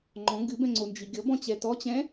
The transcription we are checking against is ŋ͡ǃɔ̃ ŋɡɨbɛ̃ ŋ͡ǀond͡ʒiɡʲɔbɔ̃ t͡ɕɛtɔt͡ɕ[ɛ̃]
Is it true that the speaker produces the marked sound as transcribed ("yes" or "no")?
yes